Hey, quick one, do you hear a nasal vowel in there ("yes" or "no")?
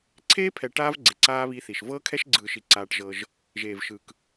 no